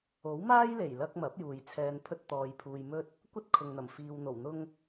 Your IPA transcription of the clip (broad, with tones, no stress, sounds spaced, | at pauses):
o˨˥ w m aː˥ j l e˨˩ j l ɐ˧ k̚ m ɐ˨˥ p̚ j uː˨ j t͡sʰ ɛː˧ n pʰ ɵ˥ t̚ t̪ ɔː˨ j pʰ uː˨ j m ɵ˥ t̚ | kʷ ɐ˥ t̚ kʰ ʊ˨ ŋ n̪ ɐ˨˩ m f iː˨ w n̪ o˨˩ w n̪ ʊ˧ ŋ